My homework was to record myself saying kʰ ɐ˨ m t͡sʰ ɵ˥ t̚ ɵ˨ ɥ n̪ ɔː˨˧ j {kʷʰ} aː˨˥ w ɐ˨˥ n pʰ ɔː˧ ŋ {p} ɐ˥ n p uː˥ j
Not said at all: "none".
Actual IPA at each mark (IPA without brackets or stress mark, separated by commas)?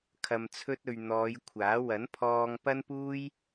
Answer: kʷʰ, p